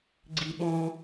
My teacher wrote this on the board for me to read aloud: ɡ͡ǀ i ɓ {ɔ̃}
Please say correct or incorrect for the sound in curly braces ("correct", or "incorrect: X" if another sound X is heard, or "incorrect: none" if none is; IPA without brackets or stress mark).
correct